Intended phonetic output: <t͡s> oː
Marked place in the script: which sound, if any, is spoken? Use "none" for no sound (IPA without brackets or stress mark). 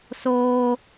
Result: s